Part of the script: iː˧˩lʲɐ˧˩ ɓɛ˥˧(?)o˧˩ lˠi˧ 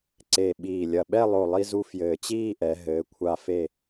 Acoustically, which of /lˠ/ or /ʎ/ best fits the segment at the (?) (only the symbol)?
lˠ